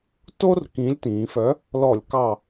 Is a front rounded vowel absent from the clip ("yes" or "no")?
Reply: no